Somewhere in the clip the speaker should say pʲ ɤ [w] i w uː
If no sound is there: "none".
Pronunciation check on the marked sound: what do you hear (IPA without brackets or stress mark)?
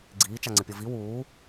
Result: v